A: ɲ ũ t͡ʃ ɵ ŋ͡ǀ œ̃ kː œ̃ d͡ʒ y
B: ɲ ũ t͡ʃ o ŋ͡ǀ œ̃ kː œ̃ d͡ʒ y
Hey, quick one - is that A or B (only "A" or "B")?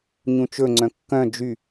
A